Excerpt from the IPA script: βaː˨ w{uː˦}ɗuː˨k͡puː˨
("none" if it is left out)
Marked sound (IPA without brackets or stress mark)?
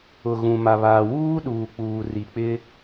uː˦